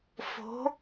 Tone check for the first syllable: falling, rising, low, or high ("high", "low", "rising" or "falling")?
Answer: rising